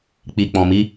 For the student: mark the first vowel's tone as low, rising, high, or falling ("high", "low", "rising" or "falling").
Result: low